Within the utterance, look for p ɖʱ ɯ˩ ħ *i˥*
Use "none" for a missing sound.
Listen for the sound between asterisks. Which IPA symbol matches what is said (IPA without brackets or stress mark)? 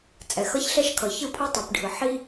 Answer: i˥